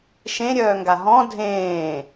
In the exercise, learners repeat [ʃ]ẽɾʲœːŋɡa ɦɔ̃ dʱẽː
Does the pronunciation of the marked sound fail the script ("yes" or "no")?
no